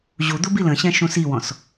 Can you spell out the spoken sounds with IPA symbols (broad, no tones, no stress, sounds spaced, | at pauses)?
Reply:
ʑ u d̪ u b i l ə̃ ɕ ɛ̃ ʃ ũ s i w ɔ̃ s